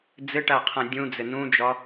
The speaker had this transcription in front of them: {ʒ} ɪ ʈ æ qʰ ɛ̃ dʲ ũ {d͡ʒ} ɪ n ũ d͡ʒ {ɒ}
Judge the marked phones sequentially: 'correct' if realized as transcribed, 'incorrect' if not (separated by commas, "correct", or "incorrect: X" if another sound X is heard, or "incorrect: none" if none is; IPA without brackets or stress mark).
incorrect: d͡z, incorrect: d͡z, correct